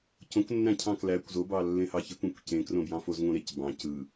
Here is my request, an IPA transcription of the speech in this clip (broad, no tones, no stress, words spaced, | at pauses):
cõknːæ̃cʰɑ̃ klækʷ zobɑlːẽhɑ çekʷ ẽkʷcẽkrõbjɑ̃ fozŋõɾec bɑ̃ cɯ